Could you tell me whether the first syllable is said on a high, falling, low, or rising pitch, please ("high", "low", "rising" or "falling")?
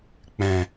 low